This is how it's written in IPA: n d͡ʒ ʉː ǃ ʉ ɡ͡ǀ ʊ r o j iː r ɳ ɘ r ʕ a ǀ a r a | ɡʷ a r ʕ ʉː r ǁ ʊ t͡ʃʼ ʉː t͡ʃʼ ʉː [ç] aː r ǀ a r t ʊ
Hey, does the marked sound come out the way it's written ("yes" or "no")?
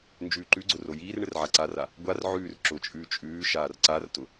no